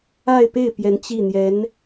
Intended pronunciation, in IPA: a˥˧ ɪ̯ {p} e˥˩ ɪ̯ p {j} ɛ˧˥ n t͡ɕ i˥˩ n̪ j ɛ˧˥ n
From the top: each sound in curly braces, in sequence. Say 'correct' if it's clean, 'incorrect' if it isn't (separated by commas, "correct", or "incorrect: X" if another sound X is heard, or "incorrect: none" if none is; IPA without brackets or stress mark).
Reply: correct, correct